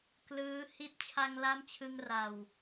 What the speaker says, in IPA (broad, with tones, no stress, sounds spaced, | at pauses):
k l ɯː˦˥ h i˦˥ t̚ t͡ɕʰ a˧ ŋ l a˦˥ m t͡ɕʰ ɯ˧ ŋ r a˨˩ w